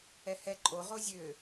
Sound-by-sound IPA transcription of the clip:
ɛhɛ ǃʼo ʁozʲø

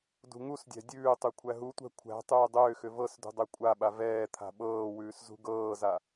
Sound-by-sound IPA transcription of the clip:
dṳŋusdʲæ̤ dʲʉːtˤʉ kʷʰæɦutʷæ̤ kʷʰæ̤ tˤʉːdˤʏːxʏ vɤsdṳ dˤækʷʼaɓa vɛː t̪ʰa̤ɓɤːwʉːs zṳɡɤːza

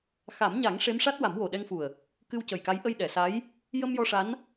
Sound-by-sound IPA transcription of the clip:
xa˨˩˦mɲa˨˩˦ŋ ʂe˧˥mʂa˦˥t̚wa˨˩˦m wo˨˩ɗɛ˧ŋfu˨˩ə̯ | kɨ˧wcə˨˩jka˧˥j ʔə˧jɗɛ˨˩˨sa˧˥j | jə˧mjɔ˧ ʂa˧˥n

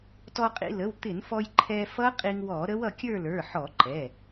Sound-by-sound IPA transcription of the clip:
tɔ˧qʼḭ˧lə˩˧˩w t̪ɪ˧˩˧nfɔ˧j ǃʰɛ˧fʌ˦˥ qʼi˧ŋwɔ˧˩˧ɾə˦˥wʌ˧ kʲə˞˥˧lə˞˩˧˩ħɔ˧˩˧ ǃɛ˩˧˩

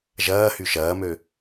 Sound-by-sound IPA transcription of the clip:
ʒɐːhy ʃɐːmø

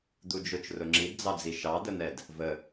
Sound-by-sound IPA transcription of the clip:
d̪ud͡ʒʊt͡ʃ rʊŋ͡ǁidd͡zɑd͡zi ʃɑd̪ən̪ɛd | və

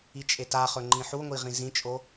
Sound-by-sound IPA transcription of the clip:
it͡ʃʼetaχɵ ŋ͡ǃĩħuŋʷi ʁĩzĩt͡ʃʼo

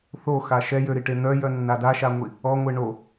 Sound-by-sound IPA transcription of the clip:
θoxa ʃɛjøɾiʈe n̪œjœnːa daʃaŋʷi | ɔŋʷe ɳo

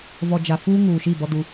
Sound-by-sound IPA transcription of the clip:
vɔ˨d͡ʒa˨ fuː˦ŋuː˨ʃi˦˨ bɔ˦du˦

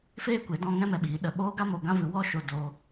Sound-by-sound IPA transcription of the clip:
feː˦kʷe˨˦dɔ̃˧ ŋɛ̃˦mɛ˧ɓiː˨˦ ɗə˨ɓoː˦ɡa˦ mo˧ɡã˦vɨ˧ wɔ˦ʃo˧ do˧

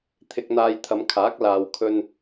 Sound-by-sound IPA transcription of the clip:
t̪ʰɪ˧k̚n̪aː˧jt̪ʰɐ˨˧mkʰaː˨˥k̚ laː˨wkʰɵ˧n

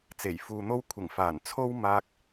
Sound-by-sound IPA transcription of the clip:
t͡se˨˩jfuː˨n̪o˧wkʷʰɪ˨˩ŋ faː˨˩n t͡sʰo˥w maː˧k̚

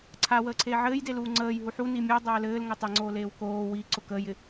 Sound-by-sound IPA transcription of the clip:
ǀʰawəːǀʰeː ʕɘːjdeluː ŋ͡ǀəːjɦu ħuni mʲedˤɘː lɘːlŋɘ tˤeŋ͡ǀoːleːw koː wiǀʊ kəːjɪ

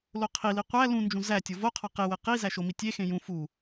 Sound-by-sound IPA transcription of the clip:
loqʰili qʷæ lũnd͡ʒũ zætʲo voqʰɒ qewe qi zæʃomi tʲexẽ jũ fu

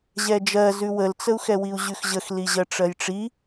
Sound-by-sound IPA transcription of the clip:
ʑɛd͡ʒɜzʉ wəlt͡səu̯xɛwiu̯ ʑʉxʑəxli ʑɜʈ͡ʂɜjʈ͡ʂi

